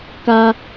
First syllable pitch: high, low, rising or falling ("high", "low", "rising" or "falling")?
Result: high